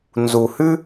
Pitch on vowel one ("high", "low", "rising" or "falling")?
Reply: low